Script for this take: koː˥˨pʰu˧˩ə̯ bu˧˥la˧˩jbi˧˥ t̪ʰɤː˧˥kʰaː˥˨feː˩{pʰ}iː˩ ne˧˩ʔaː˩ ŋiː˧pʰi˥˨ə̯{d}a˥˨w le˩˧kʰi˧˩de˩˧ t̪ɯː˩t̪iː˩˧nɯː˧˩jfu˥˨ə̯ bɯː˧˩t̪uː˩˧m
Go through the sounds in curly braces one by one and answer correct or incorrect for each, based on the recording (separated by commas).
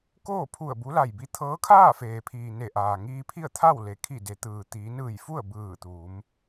correct, incorrect